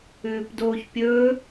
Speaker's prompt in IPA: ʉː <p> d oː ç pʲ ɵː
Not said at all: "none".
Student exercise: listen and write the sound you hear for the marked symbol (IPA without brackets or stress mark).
p